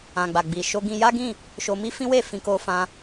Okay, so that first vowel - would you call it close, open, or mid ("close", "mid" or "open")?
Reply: open